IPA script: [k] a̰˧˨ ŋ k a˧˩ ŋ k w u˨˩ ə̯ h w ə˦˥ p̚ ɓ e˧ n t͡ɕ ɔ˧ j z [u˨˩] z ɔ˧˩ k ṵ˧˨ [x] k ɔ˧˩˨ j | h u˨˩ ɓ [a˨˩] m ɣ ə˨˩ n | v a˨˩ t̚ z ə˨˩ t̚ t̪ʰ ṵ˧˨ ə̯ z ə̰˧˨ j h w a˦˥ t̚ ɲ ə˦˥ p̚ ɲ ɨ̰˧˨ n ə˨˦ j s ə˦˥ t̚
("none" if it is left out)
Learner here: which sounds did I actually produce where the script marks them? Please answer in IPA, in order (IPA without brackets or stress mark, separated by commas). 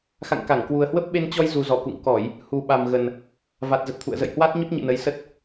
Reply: x, u˨˩, ŋ, a˨˩